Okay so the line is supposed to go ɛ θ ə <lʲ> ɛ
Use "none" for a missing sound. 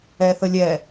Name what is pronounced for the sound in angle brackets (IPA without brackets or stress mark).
lʲ